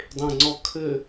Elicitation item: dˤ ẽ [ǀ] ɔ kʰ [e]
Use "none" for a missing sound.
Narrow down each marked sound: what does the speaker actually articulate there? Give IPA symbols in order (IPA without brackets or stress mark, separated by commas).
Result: ŋ͡ǀ, ɘ